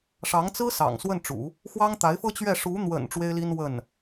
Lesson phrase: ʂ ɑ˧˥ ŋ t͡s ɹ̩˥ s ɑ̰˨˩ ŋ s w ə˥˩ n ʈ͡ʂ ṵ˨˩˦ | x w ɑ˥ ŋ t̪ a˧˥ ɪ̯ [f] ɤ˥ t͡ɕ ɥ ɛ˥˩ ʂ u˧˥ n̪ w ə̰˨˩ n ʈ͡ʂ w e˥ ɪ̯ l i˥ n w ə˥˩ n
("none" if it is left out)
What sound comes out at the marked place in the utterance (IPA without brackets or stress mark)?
f